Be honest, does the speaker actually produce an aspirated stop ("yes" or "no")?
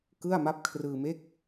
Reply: yes